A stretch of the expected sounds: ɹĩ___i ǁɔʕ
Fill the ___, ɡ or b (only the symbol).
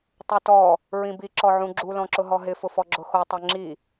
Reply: b